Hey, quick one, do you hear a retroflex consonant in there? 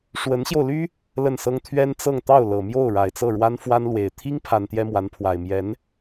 yes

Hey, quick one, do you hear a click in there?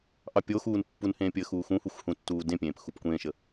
no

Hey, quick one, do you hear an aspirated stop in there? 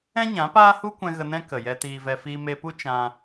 no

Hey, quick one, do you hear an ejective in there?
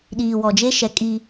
yes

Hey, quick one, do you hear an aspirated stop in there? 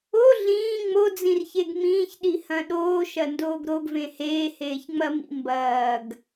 no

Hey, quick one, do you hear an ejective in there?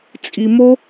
yes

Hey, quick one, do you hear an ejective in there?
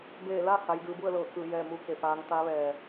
no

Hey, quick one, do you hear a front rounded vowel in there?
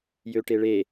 yes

